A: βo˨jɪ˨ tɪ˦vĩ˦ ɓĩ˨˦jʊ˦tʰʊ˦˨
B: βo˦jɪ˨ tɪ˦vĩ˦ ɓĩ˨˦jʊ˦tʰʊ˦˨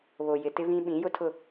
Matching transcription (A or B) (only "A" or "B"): A